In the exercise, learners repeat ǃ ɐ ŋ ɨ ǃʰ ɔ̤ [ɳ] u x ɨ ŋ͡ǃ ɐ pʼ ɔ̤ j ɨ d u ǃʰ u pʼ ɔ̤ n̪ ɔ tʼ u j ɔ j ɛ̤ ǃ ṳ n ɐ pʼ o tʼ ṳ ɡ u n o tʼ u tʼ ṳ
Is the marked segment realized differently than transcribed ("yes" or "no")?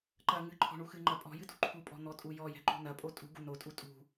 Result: no